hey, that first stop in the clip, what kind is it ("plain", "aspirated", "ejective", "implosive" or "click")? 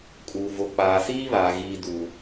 ejective